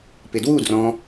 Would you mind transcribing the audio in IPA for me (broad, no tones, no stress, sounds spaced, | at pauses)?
p ɪ d w u d r ɔ̃